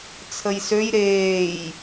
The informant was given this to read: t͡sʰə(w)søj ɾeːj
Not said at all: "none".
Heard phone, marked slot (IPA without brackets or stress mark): j